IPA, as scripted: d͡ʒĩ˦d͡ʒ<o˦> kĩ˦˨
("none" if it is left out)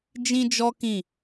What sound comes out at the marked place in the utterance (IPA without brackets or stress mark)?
ɔ˦